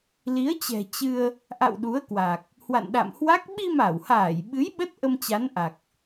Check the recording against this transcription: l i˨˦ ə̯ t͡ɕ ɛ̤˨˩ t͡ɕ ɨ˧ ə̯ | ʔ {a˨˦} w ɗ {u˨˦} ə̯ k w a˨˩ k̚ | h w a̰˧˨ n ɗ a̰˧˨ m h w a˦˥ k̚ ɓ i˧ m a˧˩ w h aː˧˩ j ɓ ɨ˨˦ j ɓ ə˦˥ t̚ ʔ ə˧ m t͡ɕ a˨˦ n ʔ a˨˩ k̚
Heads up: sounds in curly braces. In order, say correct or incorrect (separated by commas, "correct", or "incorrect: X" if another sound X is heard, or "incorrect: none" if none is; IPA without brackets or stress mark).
incorrect: a̰˧˨, correct